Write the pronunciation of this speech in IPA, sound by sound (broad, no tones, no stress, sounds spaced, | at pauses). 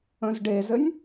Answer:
ə̃ z ɖ e z ɘ nʲ